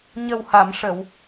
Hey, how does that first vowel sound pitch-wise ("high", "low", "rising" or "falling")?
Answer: low